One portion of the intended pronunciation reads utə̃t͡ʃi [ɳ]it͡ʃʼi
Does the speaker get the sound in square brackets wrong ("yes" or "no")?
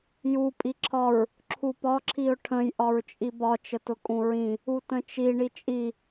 no